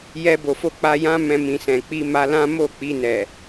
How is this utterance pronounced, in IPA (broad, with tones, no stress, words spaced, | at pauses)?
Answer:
jɛ˧bo˨fo˧ k͡pa˧ jã˦ mɛ̃˦mĩ˧sɛ̃˨ k͡pi˧ma˧ lã˦mo˦˨ k͡pi˧nɛ˨